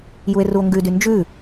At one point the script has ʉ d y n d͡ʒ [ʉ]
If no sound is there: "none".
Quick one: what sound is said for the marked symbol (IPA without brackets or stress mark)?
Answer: ʉ